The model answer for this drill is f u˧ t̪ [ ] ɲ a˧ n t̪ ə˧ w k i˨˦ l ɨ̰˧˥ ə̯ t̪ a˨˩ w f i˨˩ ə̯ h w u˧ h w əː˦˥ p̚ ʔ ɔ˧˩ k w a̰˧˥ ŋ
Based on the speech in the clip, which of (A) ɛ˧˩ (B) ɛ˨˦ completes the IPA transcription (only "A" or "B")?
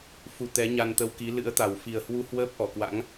B